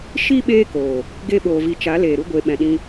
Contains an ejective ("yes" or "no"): no